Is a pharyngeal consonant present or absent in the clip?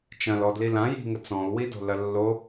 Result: absent